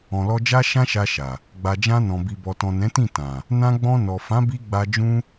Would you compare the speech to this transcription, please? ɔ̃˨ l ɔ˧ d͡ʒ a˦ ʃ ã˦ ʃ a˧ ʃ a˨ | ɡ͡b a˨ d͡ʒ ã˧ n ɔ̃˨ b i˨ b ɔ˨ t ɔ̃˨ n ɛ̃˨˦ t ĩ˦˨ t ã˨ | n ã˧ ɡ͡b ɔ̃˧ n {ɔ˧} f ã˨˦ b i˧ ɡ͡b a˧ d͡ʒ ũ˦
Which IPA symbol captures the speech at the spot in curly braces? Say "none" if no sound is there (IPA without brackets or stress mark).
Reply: ɔ˨